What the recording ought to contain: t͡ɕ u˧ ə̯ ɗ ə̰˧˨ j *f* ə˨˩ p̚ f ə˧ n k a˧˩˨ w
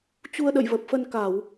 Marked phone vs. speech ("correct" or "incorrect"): incorrect